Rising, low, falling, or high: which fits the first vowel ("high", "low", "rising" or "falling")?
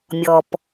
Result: low